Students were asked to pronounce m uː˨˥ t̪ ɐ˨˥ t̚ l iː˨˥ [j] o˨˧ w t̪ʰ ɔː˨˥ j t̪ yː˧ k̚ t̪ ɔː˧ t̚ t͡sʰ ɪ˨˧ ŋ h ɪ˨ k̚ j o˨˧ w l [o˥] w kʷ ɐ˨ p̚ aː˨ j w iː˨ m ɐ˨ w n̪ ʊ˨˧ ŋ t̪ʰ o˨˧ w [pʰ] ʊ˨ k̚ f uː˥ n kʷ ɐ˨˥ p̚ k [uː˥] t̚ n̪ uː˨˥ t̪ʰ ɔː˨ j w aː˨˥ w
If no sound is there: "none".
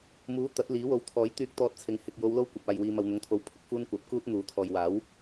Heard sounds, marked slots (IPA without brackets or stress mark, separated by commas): w, o˥, pʰ, uː˥